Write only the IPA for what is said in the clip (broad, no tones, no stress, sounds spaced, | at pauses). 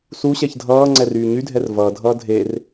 s u ɕ ɛ ç dʱ ʌː ŋ͡ǀ ɛ r yː ɲ y dʱ ɛ r v ʌː dʱ ʌː dʱ e r